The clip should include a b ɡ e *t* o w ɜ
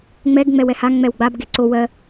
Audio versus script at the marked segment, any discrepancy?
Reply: yes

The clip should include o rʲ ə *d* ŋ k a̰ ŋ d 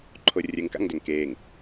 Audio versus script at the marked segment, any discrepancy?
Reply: yes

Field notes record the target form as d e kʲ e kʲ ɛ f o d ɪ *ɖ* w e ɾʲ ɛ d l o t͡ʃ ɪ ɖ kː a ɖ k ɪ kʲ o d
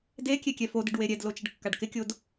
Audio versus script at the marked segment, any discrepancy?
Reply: no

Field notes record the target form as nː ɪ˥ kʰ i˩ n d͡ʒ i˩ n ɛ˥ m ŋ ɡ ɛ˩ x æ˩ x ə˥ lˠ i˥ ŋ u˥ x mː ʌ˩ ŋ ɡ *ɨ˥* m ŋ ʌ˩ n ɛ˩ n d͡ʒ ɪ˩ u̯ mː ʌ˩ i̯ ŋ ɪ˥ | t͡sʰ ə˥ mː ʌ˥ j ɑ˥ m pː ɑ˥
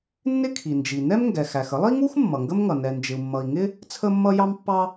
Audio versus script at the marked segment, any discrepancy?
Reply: yes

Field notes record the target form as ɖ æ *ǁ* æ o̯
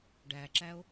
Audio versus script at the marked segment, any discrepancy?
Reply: no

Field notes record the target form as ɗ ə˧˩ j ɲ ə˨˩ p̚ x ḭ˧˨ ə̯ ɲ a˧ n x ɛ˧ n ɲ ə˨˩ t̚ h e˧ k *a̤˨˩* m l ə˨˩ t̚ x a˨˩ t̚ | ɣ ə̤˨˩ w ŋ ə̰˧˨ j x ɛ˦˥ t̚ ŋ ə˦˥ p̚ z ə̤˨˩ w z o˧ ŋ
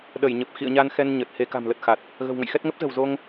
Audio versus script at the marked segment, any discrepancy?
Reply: no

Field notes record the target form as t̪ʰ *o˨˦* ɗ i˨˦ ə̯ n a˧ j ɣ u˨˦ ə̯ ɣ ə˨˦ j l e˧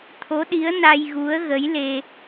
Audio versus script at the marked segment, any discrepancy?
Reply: no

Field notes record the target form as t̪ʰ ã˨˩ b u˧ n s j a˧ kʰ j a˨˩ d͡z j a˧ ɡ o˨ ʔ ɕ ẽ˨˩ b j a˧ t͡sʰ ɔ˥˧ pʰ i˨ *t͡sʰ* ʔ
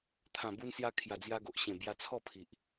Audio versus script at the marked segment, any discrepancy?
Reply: yes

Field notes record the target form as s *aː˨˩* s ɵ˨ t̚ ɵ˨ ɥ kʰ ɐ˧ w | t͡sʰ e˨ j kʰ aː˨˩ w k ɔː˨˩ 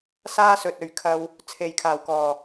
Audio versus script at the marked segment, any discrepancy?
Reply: yes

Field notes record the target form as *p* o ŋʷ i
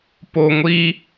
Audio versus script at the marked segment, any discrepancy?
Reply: no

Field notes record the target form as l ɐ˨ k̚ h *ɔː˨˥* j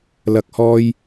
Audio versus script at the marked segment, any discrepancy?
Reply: yes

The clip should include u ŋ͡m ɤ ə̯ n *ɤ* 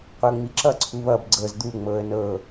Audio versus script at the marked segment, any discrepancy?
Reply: no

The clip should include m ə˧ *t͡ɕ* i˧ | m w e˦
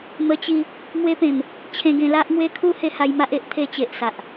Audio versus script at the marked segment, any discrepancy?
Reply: no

